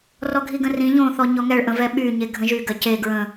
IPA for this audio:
r ɔ ɡʱ i ɡ ə̃ r ĩ ʎ õ θ ɔ ɲ ɔ ŋ ɛ ɭ ʔ ə̃ v ɛ ɓ y ɲ e ɡʱ ə̃ ʒ y ɡ ɜ c e ɡ ɹ ə̃

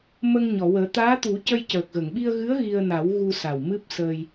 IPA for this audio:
m ə˧ ŋ ɲ ɔ˨˩˨ w əː˨˩˦ t̪ aː˧˥ t̪ u˨˩˦ c ə˧ j c əː˨˩ k̚ ɣ ə˨˩˨ ŋ ɓ i˧ ə̯ ɣ ɨ˧˥ ə̯ ɣ i˧ ə̯ n a˨˩˦ w ɣ u˧ s a˨˩ w m ɨ˦˥ p̚ s əː˧ j

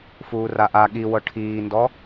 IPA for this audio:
f uː r a ʔ a ɠ i w ɤ ʈʰ iː n d ɔ

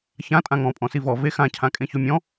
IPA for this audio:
ç ã tʼ ã ŋ ɔ̃ pʼ ɔ̃ s i v ɔ v e x ã cʰ ã kʼ ẽ ç o mʲ ɔ̃

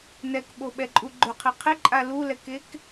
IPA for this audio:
n ɛ k ɓ o ɓ ɛ ǃʼ u ɡ͡ǃ ʊ qʰ i qʰ ɪ ǃʼ a l u l ɛ k e k

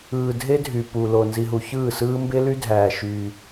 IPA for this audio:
ɯː˨ dʱ e˦ dʱ y˨ p u˨ l o˨ n z i˨ ɦ u˨ ç ɯː˦˨ s ɯː˦ m b e˦ l y˦ dʱ æː˨ ʃ yː˦

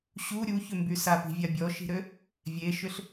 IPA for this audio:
ɕ u ɾʲ u ç ʏ m b y s a p i̤ vʲ a bʲ ɔ ʃ i̤ ɾ ø | vʲ e ʃ ʏ ɬ

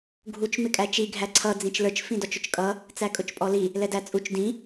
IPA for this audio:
ɡʱ u t͡ʃ m ɪ kʼ æ t͡ʃ i ɡʱ æ ǀʰ ʌ d͡z ĩ t͡ʃ l ə˞ t͡ʃ f ĩ d ɔ t͡ʃ ʊ t͡ʃ kʼ ʌ | t͡s æ kʼ ʊ t͡ʃ pʼ ɔ l i | l ɛ d æ t͡sʼ u t͡ʃ d ĩ

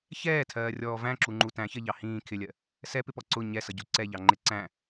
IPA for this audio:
ç ɛː tʰ ɜː rʲ ɔː v æ̃ ǁ u ŋ͡ǃ u t æ̃ ç ɜ ʎ ɑ h ĩː kʰ ɪ lʲ ɜ | s ɛ p ɪ p ɔ ǀ ʊ ɲ ɛ s ʌ ɟ u ǀ ɛ ʎ ɑ ŋ͡ǃ ɪ ǀ æ̃

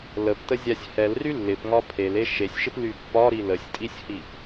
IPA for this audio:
l ə p t ə zʲ a sʲ h ɛ l r y lː ɪ p ŋ ɒ pʰ e l e ʃ e sʲ ʃ ɪ p l y pː ɒ ɾ i l ə sʲ tʼ i sʲ h i p

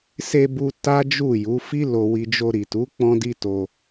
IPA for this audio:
s e˧ b u˧ t a˦ d͡ʒ u˦˨ j u˨˦ f i˦ l o˧ w i˧ d͡ʒ o˧ ɾ i˨ t u˨˦ k͡p ɔ̃˦ d i˦ t o˧

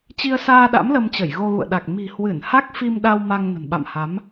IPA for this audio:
t͡ɕ i˧ ə̯ s aː˧ ɗ a̰˧˥ m l ə˧ m t͡ɕ ə˧˩ j ɣ o˧ ɣ ṵ˧˨ ə̯ ɗ a˨˩ k̚ m i̤˨˩ h w ɨ˧˩ n h a˦˥ k̚ f i˧ m ɗ a˧ w m a˧ ŋ n ə̤˨˩ n ɓ a̰˧˨ m h a˨˦ m

